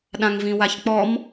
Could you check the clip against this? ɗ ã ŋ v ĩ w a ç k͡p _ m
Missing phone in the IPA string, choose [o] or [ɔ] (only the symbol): ɔ